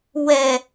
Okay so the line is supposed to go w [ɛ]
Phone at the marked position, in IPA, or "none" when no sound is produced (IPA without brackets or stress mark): ɛ